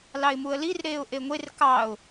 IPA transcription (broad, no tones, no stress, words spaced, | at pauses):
lɑɪ̯muə̯lir ɾeːʊ̯ʔeŋʷer kɑʊ̯